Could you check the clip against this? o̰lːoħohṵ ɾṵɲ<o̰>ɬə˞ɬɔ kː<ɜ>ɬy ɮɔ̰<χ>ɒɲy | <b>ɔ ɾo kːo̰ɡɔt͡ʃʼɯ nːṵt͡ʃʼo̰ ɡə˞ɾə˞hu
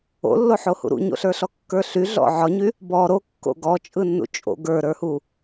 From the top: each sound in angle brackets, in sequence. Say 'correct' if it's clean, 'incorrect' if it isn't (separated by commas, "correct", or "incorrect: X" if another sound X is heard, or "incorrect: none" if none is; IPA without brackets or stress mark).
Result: correct, incorrect: ə˞, incorrect: ʕ, correct